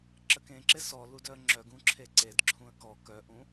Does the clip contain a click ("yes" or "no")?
yes